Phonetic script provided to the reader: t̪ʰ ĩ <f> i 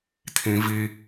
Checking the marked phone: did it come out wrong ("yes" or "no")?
yes